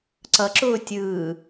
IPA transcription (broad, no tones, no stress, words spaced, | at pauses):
ǀʌǁʊː tʲɯː